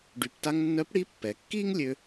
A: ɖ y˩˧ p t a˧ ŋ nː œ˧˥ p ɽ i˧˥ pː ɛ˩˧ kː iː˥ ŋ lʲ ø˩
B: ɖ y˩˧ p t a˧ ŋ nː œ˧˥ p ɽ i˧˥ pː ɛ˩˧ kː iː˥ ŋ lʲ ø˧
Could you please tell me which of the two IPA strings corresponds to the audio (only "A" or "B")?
B